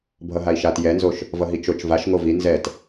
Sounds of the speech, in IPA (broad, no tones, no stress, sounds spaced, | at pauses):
bʱ ʌ ɦ a i̯ ʃ a t j ɛ n z o ʃ | v ʌ ɦ i t͡ʃ o t͡ʃ v a ʃ ŋ o v i n z ɛ t